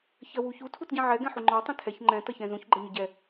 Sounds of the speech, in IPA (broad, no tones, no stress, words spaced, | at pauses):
çɜwuçu tʰutɟĩʕɛ ɡɛ̃ħuŋ͡ǃɒ tˤĩtʰɛç ŋ͡ǃɛ̃ tʌçɛ̃zũç ɡ͡ǃʌɲʊɟɛ